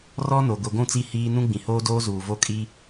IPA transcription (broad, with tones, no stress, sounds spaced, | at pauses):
r ɔ˦ n o˨ ɡʷ i˨ ɡʷ ũ˦˨ t͡s i˦˨ h iː˦ n ũ˦ ɡ͡b ĩ˨ h oː˦ d oː˦ z uː˨ v o˦ kʼ i˦